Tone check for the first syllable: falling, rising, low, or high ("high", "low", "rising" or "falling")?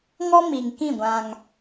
high